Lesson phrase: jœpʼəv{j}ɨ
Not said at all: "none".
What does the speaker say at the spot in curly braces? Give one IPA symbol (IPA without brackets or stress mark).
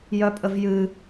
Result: j